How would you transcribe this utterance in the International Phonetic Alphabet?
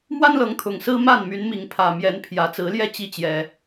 mwa˦nlɤ˨˦ŋ t̪ʰʊ˨˩ŋsɹ̩˦ ma˥˨nmy˨˦nmi˨˦ŋpʰä˨˩ mjɛ˨˦npʰjä˨˩t͡sɹ̩˨˦ljɛ˥˨ t͡ɕi˦t͡ɕjɛ˨˩

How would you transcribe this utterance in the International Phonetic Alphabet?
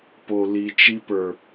po˨li˨t͡ʃi˧ pə˞˨

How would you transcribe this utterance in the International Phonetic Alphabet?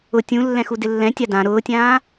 ʊ tʲũlːɛ̃xu dɪlːɛ̃ tʲadã ɾʊːtʲãː

